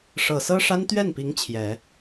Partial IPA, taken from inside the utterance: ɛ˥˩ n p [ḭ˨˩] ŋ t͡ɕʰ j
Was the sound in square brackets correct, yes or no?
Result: no